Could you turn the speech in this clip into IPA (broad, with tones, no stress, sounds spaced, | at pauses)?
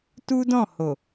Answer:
t u˦ d ɔ̃˦˨ h o˨